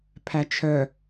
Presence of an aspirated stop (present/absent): present